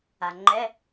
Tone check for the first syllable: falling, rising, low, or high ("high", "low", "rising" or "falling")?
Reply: low